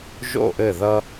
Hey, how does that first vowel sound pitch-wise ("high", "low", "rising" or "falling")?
falling